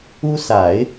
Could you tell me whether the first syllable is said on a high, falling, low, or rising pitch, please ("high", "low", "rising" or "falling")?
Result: high